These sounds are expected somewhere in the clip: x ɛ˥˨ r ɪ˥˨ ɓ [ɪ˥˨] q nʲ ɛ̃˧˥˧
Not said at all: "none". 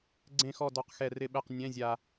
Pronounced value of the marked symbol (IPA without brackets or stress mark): ɛ˥˨